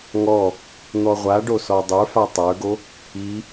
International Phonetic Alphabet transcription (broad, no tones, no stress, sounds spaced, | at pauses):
ŋ ɔ | n̪ ɔ ʁʷ a ɖ o s ɔ dˤ ə˞ f a tˤ ə˞ ɡ o | i